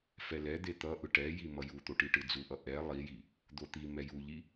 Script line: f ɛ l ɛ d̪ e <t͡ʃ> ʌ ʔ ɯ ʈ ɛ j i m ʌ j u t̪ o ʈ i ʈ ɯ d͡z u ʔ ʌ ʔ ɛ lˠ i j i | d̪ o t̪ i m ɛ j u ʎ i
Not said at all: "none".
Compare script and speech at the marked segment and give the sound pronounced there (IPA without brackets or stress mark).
t̪